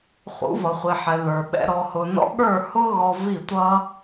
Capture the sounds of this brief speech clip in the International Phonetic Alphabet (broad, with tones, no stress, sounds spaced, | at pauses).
χ ṵ˨˦ v ʌ˨ χʷ i˨ ħ ɛ˨ ð ə˞˨ ɓ ɛ̰˧ ɾ ɔ˧ h ʊ˧ n ɔ̰˧ ɠ ə˞˦˨ h ʊ˦ ɣ ɔ˧ v i˦˨ tʷ ʌ˦